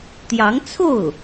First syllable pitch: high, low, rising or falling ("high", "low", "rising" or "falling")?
rising